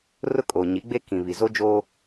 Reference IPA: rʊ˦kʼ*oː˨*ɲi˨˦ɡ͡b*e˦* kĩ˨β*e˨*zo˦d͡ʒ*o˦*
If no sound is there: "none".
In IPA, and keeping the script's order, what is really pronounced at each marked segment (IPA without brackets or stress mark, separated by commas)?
oː˨, e˦, i˨, o˦